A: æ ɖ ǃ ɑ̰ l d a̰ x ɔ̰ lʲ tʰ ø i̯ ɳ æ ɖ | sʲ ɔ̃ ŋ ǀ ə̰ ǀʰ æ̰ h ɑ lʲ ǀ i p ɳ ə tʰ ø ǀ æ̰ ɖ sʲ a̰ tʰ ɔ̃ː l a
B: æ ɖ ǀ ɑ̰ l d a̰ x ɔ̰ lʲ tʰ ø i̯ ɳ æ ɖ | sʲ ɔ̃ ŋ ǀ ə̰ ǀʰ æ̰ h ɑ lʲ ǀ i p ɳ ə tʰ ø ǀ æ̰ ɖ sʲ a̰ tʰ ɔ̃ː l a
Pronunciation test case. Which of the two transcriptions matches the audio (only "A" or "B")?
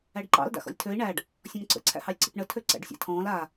A